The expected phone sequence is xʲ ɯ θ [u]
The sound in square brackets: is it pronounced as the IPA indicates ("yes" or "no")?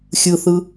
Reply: no